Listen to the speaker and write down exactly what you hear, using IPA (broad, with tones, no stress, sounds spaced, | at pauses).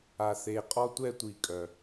a˨ θ e˨ qʼ ɔ˦ tʷ ɛ˦ tʷ i˨ kʼ œ˩